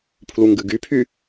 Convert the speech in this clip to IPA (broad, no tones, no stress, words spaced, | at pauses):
pʰluŋɡɨɡypʰy